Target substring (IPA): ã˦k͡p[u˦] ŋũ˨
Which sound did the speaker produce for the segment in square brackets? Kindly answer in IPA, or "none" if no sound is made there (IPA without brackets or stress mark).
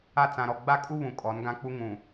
u˦